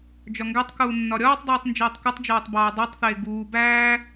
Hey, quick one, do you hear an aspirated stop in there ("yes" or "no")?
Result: no